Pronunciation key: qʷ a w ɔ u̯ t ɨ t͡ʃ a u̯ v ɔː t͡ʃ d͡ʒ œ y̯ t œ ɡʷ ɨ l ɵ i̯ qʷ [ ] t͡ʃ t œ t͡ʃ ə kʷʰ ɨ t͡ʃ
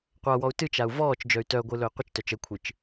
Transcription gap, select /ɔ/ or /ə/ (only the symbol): ə